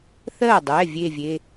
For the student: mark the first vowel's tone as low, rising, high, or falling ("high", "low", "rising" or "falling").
falling